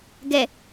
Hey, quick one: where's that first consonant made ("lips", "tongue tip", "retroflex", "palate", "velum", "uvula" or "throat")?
velum